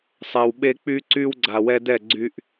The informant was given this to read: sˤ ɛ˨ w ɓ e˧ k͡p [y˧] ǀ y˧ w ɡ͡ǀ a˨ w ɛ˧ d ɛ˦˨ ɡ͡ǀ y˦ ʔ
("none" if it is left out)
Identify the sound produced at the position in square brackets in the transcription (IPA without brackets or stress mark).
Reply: y˧